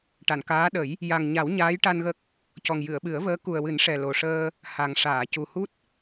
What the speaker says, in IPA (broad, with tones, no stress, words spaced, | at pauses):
ʈa˨˩˨nkaː˧˥ ɗə˨˩˦j | ja˨˩ŋɲa˨˩˦w ɲaː˧˥jʈa˧nɣə˦˥k̚ | cɔ˨˩ŋjɨ˨˩˨ə̯ɓɨ˨˩˦ə̯vəː˧˥ ku˨˩ə̯wɨ˨˩˦n ʂɛ˨˩lo˨˩ʂəː˧ | ha˨˩ŋ ʂaː˨˩˨cu˨˩hu˦˥t̚